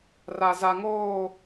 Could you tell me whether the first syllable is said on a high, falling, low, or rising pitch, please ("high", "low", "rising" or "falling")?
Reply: low